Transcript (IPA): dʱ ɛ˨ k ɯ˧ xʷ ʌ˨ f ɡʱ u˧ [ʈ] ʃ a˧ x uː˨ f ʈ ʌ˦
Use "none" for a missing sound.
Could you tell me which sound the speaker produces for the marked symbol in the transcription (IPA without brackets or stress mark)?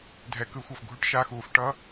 ʈ